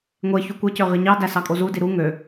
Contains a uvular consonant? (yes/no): yes